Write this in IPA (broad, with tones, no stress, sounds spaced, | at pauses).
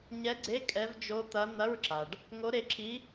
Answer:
ɲ ɛ˧˥ ɡ͡ǀ e˧˥˧ kʼ ɛ˧˥ v d͡ʒ o˧˥ t̪ ɐ˧˥ n̪ ɐ˧˥˧ ɹ ǁ a˩ ɖ | ŋ o˧˥ ɾ e˧˥ ǁʰ i˧˥